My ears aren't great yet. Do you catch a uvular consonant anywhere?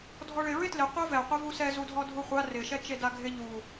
yes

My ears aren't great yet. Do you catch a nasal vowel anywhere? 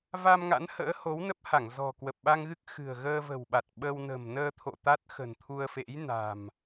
no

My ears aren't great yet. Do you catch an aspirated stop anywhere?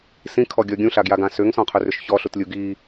yes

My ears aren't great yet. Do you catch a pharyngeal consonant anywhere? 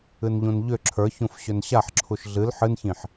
yes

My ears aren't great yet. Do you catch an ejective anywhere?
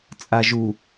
yes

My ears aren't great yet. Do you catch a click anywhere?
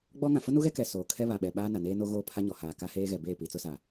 no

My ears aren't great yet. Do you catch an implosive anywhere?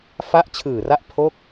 no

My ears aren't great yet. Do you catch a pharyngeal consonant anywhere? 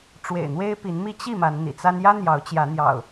no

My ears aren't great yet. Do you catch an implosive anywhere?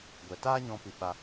yes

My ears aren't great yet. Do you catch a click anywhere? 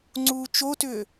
yes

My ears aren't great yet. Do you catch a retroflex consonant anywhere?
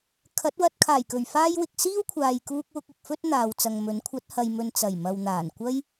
no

